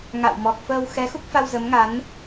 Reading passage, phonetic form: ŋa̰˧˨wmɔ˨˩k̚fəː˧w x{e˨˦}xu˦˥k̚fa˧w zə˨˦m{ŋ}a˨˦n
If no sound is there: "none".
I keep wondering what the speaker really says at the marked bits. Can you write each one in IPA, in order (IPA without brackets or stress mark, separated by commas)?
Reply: ɛ˨˦, ŋ